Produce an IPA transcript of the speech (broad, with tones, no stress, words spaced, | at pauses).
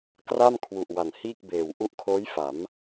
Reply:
kra˥˩mkʰwu˨˩ʔ wa˨˩nhiː˥˩k̚beː˨˩w ʔu˦˥ʔkʰoː˦˥jfa˩˦m